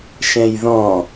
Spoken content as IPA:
ʃ ɛ̃ j ð ɔ̃

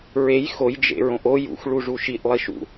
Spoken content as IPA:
ɹ e j x o j d͡ʒ ḛ ɹ õ ʔ o j ṵ x ɭ u ʐ u ʃ i ʔ lˠ i ʃ ṵ

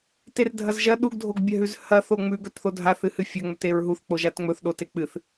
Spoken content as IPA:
t e r dʱ ɐ z ʒ ɐ ɗ u ɡ dʱ o ɡ bʲ ɐ ɦ ʉ z h ɐ θ o ŋ͡m ʉ ɡ ɵ t θ o dʱ a θ ɨ h ɨ fʲ ɐ ŋ͡m ɵ t e ɹ ɦ u θ k͡p o ʒ a t ŋ͡m ɵ θ ɗ o t e k͡p ɨ θ

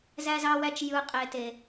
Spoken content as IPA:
z æ˦ z ɑ˦ w æ˦ t͡ʃ j ɯ˦ qʼ e˦ t e˦

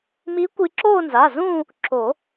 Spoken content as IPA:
m i˧˥ kʷ i˧ ǁ oː˥˧ n z a˩˧˩ z ũː˥˧ | ǁ o˨˩˦

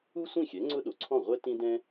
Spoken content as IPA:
u˥ sʷ ĩ˥˩ xʲ ɛ˩˥ ŋ͡ǀ ʊ˥ ɗ o˩ ǀʰ ɔ̃˥˩ ʁʷ ɛ˥ t ĩ˥ d ɛ̃˥

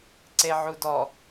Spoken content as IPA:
ǀ e ʕ u d ɔ

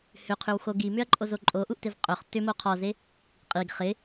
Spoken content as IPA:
h ʏ qʰ ʏ w x o ɡ i m ʏ ɐ̯ ǃʼ o z o ǃʼ o ʔ u ʔ t ɪ z qʼ ɵ χ t ʏ m o qʰ ɔ z e | qʼ i ɡ χ ɪ

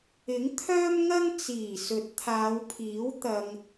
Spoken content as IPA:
ɪ˨˥ ŋ t̪ʰ œː˥ m ŋ ɐ˥ ŋ t͡s iː˨˩ s ɵ˨˥ t̚ t̪ʰ aː˨˧ w pʰ iː˨˥ w t̪ ɐ˧ ŋ

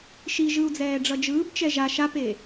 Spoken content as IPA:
ʃ i ʒ ɯ u̯ d͡z ɛː ɖ͡ʐ ʌ d͡ʒ ɯː b t͡ʃ ɛ ʒ a ʃ a p e

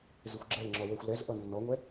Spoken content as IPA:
z ɪ xʷ ɡ͡ǁ ɛ l ŋ͡ǁ ɔ w ɛ xʷ l ɛ z ʔ ʌ nː ɔ ŋʷ ɛ

